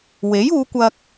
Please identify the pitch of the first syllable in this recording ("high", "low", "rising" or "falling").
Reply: rising